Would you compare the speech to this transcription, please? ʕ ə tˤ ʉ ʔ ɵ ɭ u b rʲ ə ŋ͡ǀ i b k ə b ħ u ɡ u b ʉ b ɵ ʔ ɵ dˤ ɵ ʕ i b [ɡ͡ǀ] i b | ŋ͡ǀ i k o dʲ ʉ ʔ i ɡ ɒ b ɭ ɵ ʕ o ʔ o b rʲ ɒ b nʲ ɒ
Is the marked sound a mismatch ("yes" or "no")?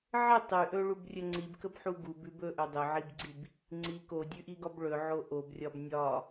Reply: no